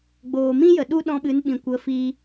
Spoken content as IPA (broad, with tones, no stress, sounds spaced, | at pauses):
ɡ͡b oː˨ m ĩ˦ j ə˨ ɗ u˦ ɗ ɔ̃˧ ɓ ɨ˨˦ n ɓ ĩ˨ kʷ ə˨˦ f i˧